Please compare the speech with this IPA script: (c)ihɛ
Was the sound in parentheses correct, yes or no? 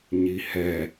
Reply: no